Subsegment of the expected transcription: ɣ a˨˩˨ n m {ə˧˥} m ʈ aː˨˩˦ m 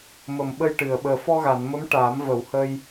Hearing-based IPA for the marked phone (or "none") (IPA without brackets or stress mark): ə˧˥